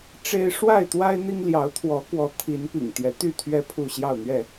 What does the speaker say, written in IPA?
ʈ͡ʂ e˦ ɪ̯ ʂ w a˥˨ ɪ̯ t̪ w a˦ ɪ̯ n̪ i˦ ŋ l j ɑ˨˦ ʊ̯ t̪ʰ w ɔ˨˦ k w ɔ˨˦ t̪ʰ i˨˦ n p ḭ˨˩ ŋ t̪ j ɛ˨˦ t̪ y˥˨ t̪ʰ ɥ ɛ˦ pʰ u˥˨ ɕ j ɑ˥˨ ʊ̯ n̪ ɥ ɛ˥˨

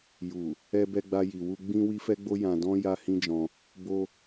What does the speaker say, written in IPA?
j u˨ | ɛ˧ b ɛ˧ ɡ͡b a˧ j i˨ w u˧ ɡ͡b ĩ˧ w i˦ f ɛ˦ ɡ͡b o˦ j ã˧ d ɔ̃˦ j a˧ h ĩ˦ d͡ʒ ɔ̃˧ | b o˧

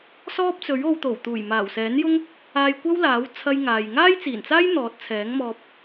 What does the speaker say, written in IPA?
s ɔː˥ p̚ t͡s ɵ˨˥ ɥ o˧ w t̪ o˨˩ w t̪ uː˨˩ j m aː˨˩ w s ɛː˨˥ n j ʊ˥ ŋ | aː˨ j kʷ ɐ˥ w l aː˨˥ w t͡sʰ ɐ˥ j ŋ aː˨ j ŋ aː˥ j t͡s iː˨˩ n t͡s aː˥ j n̪ ɔː˨˥ t̚ t͡sʰ ɛː˨˥ ŋ m ɔː˧ p̚

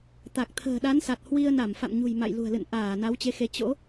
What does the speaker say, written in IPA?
t̪ a˨˩ k̚ t̪ʰ ə̤ː˨˩ ɗ a˨˦ n s a˨˩ t̚ h w i˧ ə̯ n a˧˩ m f a̰˧˨ m ɲ ṳ˨˩ j m a̰˧˨ j l ṳ˨˩ ə̯ l ɨ̰˧˨ n ʔ aː˧˩ n a˨˦ w t͡ɕ e˨˦ x e˨˦ t͡ɕ o̰˧˥

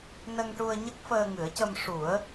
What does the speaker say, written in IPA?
n ə˧ ŋ ʈ u˧ ə̯ ɲ ə˦˥ k̚ f əː˧ ŋ ɨ˨˩˦ ə̯ c ə˧ m ʂ u˨˩˦ ə̯

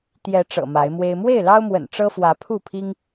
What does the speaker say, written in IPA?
t̪ j ɛ˨˦ ʈ͡ʂ ɤ̰˨˩ m a˨˦ ɪ̯ m w e˦ ɪ̯ m w e˥˨ ɪ̯ l ɑ˦ ʊ̯ m w ə̰˨˩ n ʈ͡ʂ ɤ˦ f w ä˨˦ pʰ u˥˨ pʰ i˦ ŋ

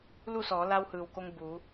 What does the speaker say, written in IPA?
l u˥˨ s ɔː˩˧ l a˧ w h ɯː˩ w k o˧ ŋ b uː˩˧

